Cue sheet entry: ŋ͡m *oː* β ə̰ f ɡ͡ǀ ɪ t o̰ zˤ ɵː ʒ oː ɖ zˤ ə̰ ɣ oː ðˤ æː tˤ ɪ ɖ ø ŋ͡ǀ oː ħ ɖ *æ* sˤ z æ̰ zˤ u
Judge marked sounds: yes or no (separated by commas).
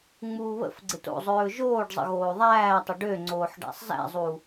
no, no